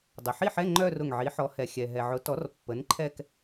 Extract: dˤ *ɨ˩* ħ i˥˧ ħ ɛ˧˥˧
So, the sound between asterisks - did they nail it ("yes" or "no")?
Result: no